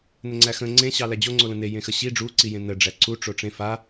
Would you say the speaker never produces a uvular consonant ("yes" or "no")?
yes